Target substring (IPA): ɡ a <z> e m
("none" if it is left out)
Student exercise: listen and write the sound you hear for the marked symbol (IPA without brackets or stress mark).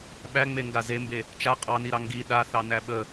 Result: z